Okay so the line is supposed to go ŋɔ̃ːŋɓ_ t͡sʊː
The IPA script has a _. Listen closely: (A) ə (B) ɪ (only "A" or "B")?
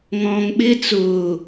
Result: B